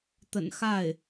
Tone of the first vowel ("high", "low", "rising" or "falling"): low